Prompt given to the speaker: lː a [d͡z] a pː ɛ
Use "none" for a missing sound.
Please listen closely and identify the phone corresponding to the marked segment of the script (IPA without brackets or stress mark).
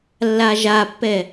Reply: ʒ